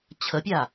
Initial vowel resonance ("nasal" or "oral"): oral